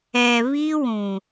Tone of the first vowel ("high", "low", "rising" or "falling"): low